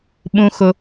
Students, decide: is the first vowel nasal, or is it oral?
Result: nasal